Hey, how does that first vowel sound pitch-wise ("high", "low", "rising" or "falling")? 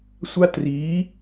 high